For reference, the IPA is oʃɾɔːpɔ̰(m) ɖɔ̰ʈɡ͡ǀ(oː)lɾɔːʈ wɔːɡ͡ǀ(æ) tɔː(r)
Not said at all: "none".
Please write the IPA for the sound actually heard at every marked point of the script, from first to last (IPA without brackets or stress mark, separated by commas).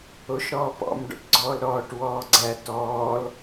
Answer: m, ɔː, æ, l